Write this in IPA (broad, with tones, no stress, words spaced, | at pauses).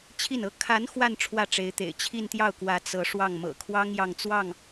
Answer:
t͡ɕʰi˥˩nɤ˥ kʰa˧˥n xwa˥˧n ʈ͡ʂʰwä˥˩ʈ͡ʂe˧˥ɪ̯t̪ḛ˨˩ɪ̯ t͡ɕʰi˥˧nt̪jɑ˥˩ʊ̯kwä˧˥ t͡sɤ˧˥ʂwɑ˥˩ŋ mɤ̰˨˩kʰwɑ˥ŋ jɑ˥˧ŋt͡swɑ˥˩ŋ